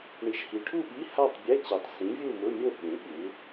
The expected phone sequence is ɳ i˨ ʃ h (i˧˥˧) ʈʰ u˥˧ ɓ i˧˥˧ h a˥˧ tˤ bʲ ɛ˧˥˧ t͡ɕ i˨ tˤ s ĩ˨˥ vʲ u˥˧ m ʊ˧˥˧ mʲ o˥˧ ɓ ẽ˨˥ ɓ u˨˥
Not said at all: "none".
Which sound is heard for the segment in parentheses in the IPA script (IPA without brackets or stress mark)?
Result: i˨